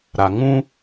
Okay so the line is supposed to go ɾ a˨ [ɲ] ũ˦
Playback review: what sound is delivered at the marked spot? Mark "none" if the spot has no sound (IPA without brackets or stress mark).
ŋ